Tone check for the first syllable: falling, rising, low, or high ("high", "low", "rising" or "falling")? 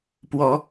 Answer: rising